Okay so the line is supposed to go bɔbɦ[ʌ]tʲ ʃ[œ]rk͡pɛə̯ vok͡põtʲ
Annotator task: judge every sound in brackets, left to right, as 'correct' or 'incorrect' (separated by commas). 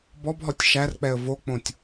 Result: incorrect, incorrect